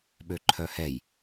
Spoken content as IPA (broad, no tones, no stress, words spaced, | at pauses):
ɓøǃʰœhɛj